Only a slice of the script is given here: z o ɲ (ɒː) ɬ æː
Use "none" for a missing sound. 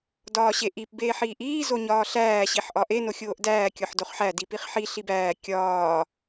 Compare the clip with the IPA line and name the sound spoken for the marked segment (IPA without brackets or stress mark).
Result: ɒː